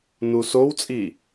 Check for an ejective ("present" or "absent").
present